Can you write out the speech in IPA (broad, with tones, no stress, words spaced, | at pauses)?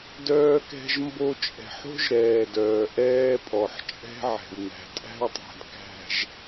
dœː˦kɛ̤˦ʒmbo˦ t͡ʃʼɛ̤˨ħo̤˦ʒɾɛː˨ dœː˨ʔɛː˦pʼɔ˨ħ t͡ʃʼɛ̤˦ʕɛ̤˨w n̪æ̤˨tʼæ̤˦wtˤæ̤˨d kæ̤˨ʒ